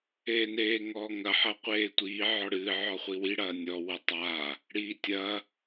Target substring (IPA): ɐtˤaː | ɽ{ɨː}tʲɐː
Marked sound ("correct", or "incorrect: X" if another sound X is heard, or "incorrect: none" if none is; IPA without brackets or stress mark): incorrect: iː